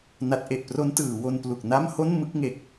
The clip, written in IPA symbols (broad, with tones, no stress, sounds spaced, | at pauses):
n a˦˥ t̚ ʔ e˨˩ ʔ p r o˦˥ n t ɯː˩˦ w o˧ n p l u˨˩ k̚ n a˥˩ m h o˥˩ n m ɯ˥˩ k̚ ŋ e˨˩ k̚